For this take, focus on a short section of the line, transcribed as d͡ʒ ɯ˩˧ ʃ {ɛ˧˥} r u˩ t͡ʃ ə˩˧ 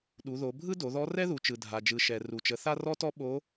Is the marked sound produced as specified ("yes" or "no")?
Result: no